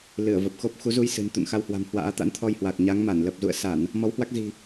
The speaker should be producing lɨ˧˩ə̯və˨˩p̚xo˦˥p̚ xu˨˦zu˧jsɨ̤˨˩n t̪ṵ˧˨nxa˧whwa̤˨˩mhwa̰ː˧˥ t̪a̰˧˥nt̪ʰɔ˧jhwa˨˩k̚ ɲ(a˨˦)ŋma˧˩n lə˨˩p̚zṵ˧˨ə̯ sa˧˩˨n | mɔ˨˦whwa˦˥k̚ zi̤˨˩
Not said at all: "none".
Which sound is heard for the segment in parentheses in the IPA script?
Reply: a˨˦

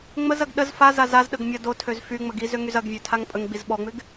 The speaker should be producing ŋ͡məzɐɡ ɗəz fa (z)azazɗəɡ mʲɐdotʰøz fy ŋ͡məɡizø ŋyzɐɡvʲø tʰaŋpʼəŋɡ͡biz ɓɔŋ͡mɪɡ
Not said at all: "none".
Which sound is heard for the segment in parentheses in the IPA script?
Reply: z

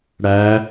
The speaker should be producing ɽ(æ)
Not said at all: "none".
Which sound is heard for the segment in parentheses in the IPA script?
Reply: æ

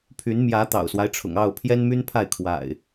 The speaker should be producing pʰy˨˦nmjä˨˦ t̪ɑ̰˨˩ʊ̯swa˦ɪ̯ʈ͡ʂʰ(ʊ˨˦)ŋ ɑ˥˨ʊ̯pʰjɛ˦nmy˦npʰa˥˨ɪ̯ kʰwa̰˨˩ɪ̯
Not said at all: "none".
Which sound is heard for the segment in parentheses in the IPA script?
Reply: ʊ̰˨˩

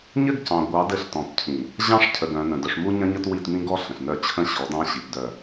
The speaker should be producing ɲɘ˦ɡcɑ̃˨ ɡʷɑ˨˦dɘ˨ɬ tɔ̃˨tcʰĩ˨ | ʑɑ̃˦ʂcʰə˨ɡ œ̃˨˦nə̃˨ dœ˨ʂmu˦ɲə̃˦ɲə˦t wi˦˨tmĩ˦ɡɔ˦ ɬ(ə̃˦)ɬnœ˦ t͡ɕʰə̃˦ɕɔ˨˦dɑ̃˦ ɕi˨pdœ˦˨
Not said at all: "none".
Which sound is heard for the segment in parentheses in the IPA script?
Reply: ə̃˨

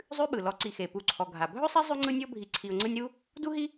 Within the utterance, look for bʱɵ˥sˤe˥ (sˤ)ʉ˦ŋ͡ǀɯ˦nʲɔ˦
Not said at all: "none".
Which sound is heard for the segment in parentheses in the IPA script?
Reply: zˤ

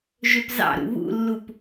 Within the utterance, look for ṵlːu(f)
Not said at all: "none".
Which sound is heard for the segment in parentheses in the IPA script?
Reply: p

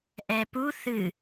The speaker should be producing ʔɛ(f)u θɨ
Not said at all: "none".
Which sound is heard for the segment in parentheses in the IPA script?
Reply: p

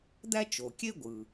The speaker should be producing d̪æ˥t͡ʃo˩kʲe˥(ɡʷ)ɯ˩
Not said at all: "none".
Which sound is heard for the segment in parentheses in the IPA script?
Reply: ɡʷ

